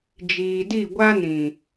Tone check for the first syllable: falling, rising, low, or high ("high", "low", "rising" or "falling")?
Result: low